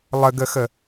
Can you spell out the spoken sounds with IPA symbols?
lˠ ə ɡ ə x ə

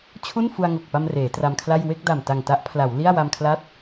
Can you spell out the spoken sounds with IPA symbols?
t͡ɕʰ u˥˩ n f u˧ a̯ ŋ o˨˩ k̚ p a˧ m r eː˩˦ t r a˧ m kʰ l a˥˩ j w e˥˩ k̚ d a˨˩ m t a˨˩ ŋ t a˦˥ ʔ pʰ l a˩˦ w l i˥˩ a̯ w a˧ m kʰ l a˦˥ t̚

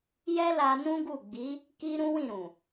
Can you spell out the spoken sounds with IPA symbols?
j ɛ˦ l a˧ n ũ˦ ɡ u˦˨ ɡ͡b i˨˦ | k i˧ ɾ ũ˦ w ĩ˦˨ ɾ ũ˨

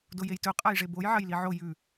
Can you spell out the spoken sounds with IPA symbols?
d o j e j t ɵ qʼ a j ʐ e b o j ʕ ɐ j l i ʕ o j ʉ

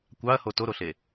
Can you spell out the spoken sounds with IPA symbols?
kʷ ɑ ɐ̯ h o t o ɾ o ɬ e

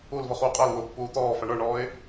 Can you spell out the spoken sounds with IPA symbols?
u l v ʌ χ uː qʼ æ l w ʊː pː uː t̪ ɔː f æ ɳ ə˞ ɳ ɔː ɪ̯

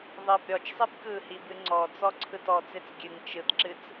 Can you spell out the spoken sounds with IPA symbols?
ðˤ ɨ b ɾʲ ɔ t͡ʃ sˤ e b k ɯ h i b ɨ ŋ͡ǀ ɔ t͡s ɔ ǀʰ ɯ t ɔ t͡s e t͡s ɡʲ ɨ ŋ t͡ʃ ɯ t ǁ ɨ t͡s

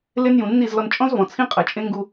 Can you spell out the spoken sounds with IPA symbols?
l e˦ n j ũ˨ nː i˦˨ z l ɔ˧ n t͡ʃʼ ɔ̃˦ z v ɔ̃˨ t͡sʰ ĩ˦ qʼ ɐ˨ t͡ʃʼ ẽ˦ ŋ ɡ u˧

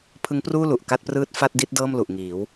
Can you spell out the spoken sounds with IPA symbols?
pʰ ɯ˦˥ ŋ p r uː˥˩ l u˨˩ ʔ k a˥˩ t̚ p r ɯː˥˩ t̚ f a˥˩ t̚ d i˥˩ t̚ d ɤː˥˩ m l u˨˩ ʔ ŋ iː˩˦ w

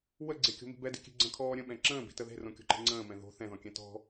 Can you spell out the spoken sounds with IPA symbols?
w ə ɡ͡ǀ e kʲ o̤ m i̤ b ɛ d i̤ kʲ e̤ ɡ͡ǀ ə̃ kʰ ɔː ɾʲ ə̃ ɓ ɛ̃ ǁ ə̃ː b i̤ t ə ð e̤ r õ kʲ o̤ ǃ e̤ ŋ͡ǀ ə̃ː m ɛ̃ ð o̤ θ ɛ̃ ð ɔ̃ kʲ ɛ̃ t ɔ̤

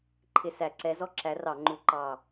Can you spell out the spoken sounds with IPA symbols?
ǃʰ ɪ˧˩ s æ˧˩˧ ǀ ɛ˨˥ z ɔ˥˨ ǁ æ˨˥ r ɑ˧˩˧ ŋ͡ǃ u˧˩˧ ǃ ɑ˧˩

